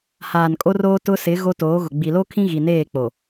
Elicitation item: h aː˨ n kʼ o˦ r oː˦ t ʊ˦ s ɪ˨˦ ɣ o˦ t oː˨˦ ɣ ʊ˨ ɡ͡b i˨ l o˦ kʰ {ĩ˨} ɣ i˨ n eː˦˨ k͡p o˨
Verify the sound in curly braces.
incorrect: ĩ˦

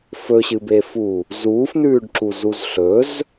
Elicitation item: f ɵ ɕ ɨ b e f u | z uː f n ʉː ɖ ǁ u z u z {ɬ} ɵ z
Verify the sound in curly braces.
correct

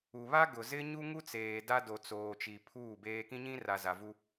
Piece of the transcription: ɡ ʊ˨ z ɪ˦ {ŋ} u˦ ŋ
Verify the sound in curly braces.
incorrect: ɲ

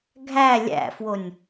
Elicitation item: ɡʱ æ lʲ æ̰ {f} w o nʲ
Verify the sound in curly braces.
correct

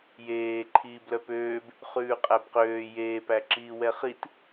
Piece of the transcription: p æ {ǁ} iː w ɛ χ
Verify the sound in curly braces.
correct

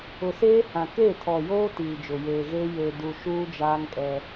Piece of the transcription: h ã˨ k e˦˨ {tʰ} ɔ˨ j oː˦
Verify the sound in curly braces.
correct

